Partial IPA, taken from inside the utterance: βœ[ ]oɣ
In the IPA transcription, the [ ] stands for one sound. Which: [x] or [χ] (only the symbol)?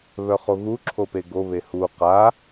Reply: χ